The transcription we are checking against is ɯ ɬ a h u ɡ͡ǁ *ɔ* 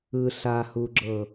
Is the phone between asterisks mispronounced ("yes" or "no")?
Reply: yes